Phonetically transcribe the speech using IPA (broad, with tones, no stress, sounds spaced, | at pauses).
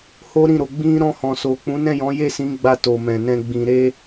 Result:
h o˦ ɾ ĩ˦˨ ɾ o˧ ɡ͡b ĩ˧ ɾ ɔ̃˧ h ɔ̃˨ s o˨ k͡p ũ˨˦ n ɛ̃˦˨ j ɔ̃˨˦ j e˦˨ s ĩ˨˦ ɡ͡b a˧ t o˨ m ɛ̃˨ n ɛ̃˧ ɡ͡b ĩ˧ ɾ e˦